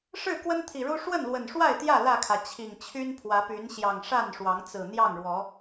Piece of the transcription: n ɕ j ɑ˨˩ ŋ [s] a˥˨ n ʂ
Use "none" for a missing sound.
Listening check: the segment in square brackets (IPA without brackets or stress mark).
ʂ